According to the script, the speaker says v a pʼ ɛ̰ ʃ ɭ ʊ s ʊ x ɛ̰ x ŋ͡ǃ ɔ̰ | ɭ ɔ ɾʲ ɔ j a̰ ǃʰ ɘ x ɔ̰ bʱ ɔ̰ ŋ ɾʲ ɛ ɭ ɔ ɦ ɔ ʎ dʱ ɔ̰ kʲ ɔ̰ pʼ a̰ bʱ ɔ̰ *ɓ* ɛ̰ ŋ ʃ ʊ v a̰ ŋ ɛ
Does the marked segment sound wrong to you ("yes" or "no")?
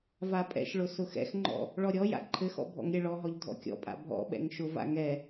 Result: no